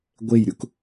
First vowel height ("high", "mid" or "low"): mid